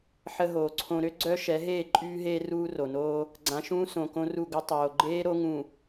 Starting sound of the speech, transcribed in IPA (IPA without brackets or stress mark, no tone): ħ